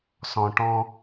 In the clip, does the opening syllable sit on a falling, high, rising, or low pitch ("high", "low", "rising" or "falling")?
low